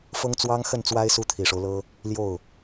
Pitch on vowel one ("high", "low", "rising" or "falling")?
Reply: high